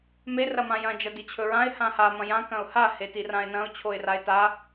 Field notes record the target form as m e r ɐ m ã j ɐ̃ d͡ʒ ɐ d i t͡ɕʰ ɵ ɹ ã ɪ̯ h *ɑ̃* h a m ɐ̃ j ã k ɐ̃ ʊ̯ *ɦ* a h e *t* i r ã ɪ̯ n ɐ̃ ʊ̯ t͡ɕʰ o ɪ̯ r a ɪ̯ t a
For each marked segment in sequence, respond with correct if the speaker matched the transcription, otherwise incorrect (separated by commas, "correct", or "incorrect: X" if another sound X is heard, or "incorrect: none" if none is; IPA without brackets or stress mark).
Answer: incorrect: ã, incorrect: h, correct